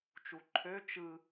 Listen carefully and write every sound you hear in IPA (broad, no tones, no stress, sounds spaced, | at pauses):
t͡ʃ u ǃʰ ø t͡ʃ ɯ